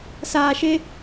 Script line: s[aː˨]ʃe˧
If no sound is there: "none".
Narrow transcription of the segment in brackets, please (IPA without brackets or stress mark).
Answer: aː˨